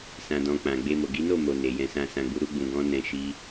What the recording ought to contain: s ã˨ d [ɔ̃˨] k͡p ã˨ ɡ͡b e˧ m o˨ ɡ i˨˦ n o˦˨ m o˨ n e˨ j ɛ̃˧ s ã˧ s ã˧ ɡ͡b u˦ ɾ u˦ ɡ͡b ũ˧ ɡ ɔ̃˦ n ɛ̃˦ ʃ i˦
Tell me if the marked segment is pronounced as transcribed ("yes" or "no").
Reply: yes